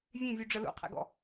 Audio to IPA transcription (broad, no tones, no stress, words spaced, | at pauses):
vʲẽvʲu ɖ͡ʐəlṵqʰḛɡɔ̰